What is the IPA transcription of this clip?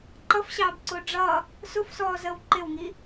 ǃʌfɕɑːbǀʊː ɖ͡ʐʌ | sʊfsɔːzəːw ǃɪwŋi

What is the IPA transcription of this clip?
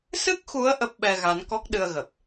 sɨ˦˥k̚xu˨˦ə̯ ʔə˦˥p̚ɓɛ˧ɣa˨˦n kɔ˦˥k̚ɗɨ˧ə̯ɣə˨˩p̚

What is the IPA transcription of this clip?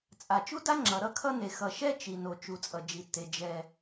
t͡sʼa˩ t͡ʃu˥da˥ ŋ͡ǁʌ˩ɾʌ˥kʰʌ˥ne˩ xʌ˩ʃɛ˥ t͡ʃi˩ no˩ t͡ʃu˩t͡sʼʌ˩d͡ʒi˩tːe˩ d͡ʒɛ˩

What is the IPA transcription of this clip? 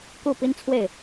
ku˥˩pi˥nt͡sʰwe˥˩ɪ̯

